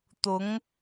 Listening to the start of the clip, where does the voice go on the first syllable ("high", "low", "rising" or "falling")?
rising